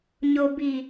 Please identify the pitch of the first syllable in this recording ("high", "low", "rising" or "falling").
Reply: low